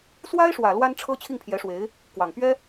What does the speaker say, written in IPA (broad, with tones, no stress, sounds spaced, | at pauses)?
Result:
s w a˥ ɪ̯ ʂ w ä˨˩ l w a˥ n ʈ͡ʂʰ ɤ˥ t͡ɕʰ i˥˩ ŋ pʰ j ɛ˧˥ ʂ w e˧˥ ɪ̯ | k w ɑ˨˩ ŋ p ɥ ɛ˥